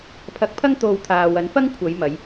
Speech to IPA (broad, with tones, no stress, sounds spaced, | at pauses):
pʰ ɐ˧ k̚ pʰ ɐ˥ ŋ t̪ o˧ w t̪ʰ aː˨ w ɐ˨˥ n f ɐ˥ ŋ kʷʰ ɐ˨˧ j m ɐ˨˧ j